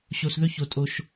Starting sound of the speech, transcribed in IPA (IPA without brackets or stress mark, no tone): ɕ